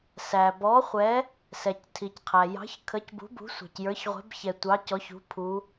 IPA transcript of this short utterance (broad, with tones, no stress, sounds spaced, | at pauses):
s æ˩ b ɔ˨˥ χʷ ɛ˨˥ | s ɛ˩ c tʰ i˩ c qʰ æ˩ j ɑ̤˨˥ ç kʰ ə˨˥ c b ṳ˨˥ b ṳ˨˥ sʷ ɑ̤˩ c j ə˞˨˥ ç ʁʷ ɛ̤˨˥ b ç ɛ˩ tʷ ɑ˨˥ c ɔ˨˥ ç ṳ˨˥ pʰ u˨˥